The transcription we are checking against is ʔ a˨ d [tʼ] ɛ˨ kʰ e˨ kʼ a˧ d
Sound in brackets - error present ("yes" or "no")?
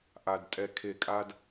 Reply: no